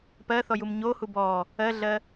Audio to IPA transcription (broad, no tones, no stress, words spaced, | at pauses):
pɜθɔjum ɲohu bɔ | ɜɮɜ